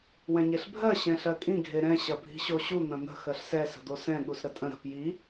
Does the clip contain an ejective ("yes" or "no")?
yes